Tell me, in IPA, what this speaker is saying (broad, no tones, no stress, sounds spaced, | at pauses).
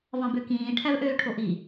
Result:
v ɑ̃ b ø k ĩː ʈʰ æ v ʔ øː ʈʰ o ʔ i